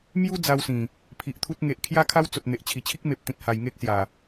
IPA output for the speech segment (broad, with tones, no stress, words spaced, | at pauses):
mju˦ d͡za˧wsĩ˨˩ | pʰi˨ʔt̪ʰu˦t̚ ŋe˨ʔ kʰja˦kʰa˦w t͡so˨t̚n̪e˨ʔ t͡ɕʰi˨˩t͡ɕʰi˦k̚ me˨p̚ t̪ĩ˨t̚ha˨˩jŋe˦k̚ sja˨˩